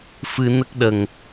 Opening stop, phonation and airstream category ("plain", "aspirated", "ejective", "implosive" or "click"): plain